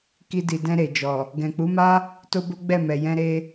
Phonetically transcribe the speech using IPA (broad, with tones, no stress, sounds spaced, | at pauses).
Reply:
k i˧ d i˨ d ɛ̃˧ ɾ e˨ d͡ʒ ɔ˨ | ɡ ɛ̃˨ k͡p u˨˦ m a˦ | t o˦ b o˦ ɡ͡b ɛ˦˨ m ɛ˨ j ɛ̃˧ ɾ e˧